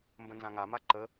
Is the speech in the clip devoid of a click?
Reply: no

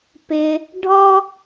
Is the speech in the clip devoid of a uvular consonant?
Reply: yes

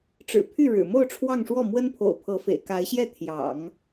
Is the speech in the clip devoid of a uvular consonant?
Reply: yes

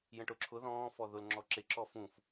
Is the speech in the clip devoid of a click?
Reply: no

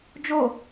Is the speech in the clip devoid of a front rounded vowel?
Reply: yes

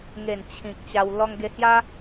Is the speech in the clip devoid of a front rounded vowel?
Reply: yes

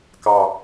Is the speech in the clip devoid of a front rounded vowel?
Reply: yes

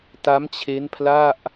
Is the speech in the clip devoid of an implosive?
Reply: yes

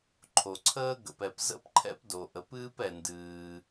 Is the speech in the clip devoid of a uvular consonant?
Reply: yes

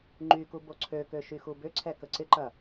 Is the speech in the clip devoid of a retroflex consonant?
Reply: yes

